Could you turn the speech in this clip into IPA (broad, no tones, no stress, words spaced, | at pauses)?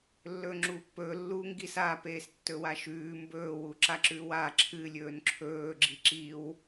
lːɵːŋ͡ǁuːpːɵː lːuːŋɡisa peːstːɵwaʃʉː mbɵː wuǁaǁʉwa ǁʰɨ lʲɵːnǁʰɵː ɡ͡ǁiǁiw